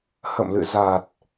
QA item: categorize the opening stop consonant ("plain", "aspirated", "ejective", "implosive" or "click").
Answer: plain